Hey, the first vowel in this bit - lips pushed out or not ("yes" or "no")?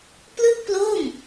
no